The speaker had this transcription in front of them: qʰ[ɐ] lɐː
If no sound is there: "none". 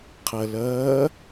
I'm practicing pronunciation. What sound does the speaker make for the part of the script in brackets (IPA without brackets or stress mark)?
ɐ